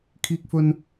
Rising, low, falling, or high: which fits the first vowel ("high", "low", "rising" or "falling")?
high